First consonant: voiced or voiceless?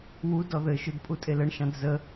voiced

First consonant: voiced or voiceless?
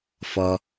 voiceless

